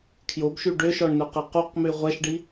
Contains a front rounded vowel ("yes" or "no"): yes